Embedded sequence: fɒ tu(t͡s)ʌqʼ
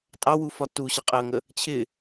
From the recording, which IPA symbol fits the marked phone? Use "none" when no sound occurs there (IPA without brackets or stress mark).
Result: ɕ